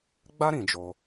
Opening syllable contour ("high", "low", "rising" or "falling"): high